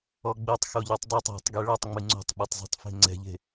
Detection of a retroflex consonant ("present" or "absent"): present